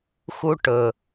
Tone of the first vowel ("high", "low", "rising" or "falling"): high